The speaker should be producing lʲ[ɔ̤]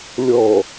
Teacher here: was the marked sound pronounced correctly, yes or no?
no